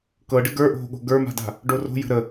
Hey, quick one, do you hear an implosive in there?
yes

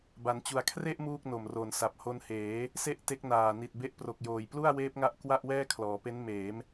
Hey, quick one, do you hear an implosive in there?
no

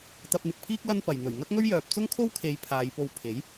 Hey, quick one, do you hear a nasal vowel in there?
no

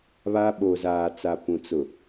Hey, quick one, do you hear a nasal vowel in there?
yes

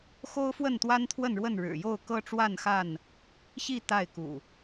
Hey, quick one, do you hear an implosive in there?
no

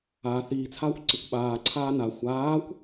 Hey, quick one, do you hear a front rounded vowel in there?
no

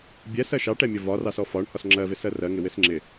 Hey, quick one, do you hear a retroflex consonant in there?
yes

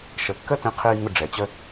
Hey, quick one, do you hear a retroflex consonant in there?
yes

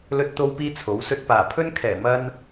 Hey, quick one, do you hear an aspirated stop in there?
yes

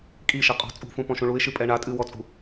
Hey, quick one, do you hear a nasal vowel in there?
yes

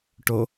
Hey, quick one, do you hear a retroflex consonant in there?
yes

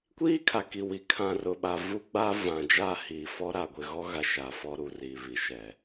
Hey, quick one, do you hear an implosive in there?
yes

